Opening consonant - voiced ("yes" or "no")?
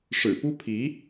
no